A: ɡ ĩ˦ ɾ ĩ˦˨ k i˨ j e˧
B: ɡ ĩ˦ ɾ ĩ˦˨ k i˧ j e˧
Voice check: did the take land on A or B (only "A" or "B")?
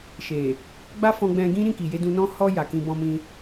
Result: A